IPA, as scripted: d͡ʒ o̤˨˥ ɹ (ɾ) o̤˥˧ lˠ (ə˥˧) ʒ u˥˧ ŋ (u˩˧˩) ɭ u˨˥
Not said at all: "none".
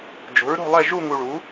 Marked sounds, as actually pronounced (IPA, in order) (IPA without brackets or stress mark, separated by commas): ɾ, ɛ˥˧, u˧